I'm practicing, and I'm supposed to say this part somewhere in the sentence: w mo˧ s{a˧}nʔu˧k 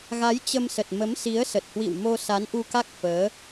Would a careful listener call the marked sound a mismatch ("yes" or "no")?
yes